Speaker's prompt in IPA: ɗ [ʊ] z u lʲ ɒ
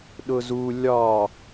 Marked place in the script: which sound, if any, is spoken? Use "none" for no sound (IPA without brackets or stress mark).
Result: ʊ